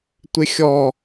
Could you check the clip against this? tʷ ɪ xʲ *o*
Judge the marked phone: incorrect: ɔ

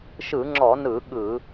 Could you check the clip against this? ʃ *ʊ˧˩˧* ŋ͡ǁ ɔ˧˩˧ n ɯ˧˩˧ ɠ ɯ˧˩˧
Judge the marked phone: incorrect: ɯ˧˩˧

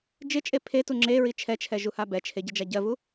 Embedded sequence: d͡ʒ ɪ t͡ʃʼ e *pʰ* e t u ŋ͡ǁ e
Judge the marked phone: correct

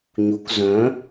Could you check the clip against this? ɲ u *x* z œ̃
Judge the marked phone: incorrect: k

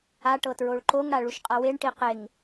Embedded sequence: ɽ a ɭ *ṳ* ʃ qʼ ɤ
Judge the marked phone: incorrect: u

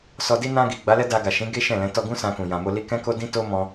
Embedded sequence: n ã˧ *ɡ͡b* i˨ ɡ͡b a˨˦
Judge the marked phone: incorrect: ɡ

